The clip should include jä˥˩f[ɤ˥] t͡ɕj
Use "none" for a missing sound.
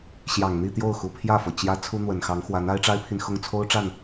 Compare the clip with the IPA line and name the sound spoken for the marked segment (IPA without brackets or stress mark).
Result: ɤ˩